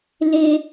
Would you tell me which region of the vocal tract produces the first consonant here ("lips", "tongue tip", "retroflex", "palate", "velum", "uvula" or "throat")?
tongue tip